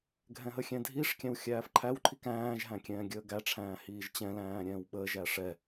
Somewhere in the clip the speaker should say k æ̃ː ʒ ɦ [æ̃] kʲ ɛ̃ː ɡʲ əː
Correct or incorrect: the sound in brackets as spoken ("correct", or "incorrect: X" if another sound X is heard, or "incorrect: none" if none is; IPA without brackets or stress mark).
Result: correct